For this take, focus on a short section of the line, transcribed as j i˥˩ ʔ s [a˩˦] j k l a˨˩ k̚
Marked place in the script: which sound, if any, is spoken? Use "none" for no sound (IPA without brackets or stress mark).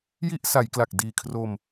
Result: a˩˦